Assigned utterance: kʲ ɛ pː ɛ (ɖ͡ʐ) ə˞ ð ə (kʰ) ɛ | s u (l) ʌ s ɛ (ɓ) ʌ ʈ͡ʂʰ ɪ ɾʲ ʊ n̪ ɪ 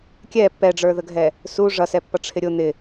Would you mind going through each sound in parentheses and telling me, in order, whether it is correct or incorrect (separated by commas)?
correct, incorrect, incorrect, incorrect